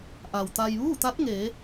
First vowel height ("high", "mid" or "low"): low